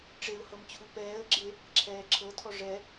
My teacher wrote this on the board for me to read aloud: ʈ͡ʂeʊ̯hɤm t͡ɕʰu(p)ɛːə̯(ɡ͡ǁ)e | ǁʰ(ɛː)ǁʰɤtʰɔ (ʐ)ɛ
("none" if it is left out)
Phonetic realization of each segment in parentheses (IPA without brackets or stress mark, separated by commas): p, ɡ͡ǁ, ɛː, ʐ